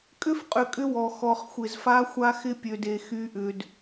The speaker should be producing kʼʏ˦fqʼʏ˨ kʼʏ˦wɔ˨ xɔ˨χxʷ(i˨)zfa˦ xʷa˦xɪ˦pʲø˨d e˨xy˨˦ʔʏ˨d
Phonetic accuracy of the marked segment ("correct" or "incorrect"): incorrect